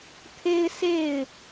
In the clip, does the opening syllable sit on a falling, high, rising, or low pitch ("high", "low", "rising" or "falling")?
high